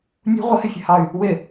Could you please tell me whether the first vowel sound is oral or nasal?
oral